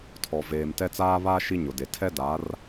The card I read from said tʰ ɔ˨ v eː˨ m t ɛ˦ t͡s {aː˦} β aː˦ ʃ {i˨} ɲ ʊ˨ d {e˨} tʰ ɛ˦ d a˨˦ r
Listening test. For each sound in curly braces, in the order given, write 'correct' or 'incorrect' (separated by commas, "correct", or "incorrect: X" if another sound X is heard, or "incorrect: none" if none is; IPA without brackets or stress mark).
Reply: correct, incorrect: i˦, correct